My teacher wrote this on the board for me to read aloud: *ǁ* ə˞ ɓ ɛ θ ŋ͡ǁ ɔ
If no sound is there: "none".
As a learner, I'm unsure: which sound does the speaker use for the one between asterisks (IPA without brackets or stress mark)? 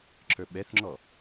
ǁ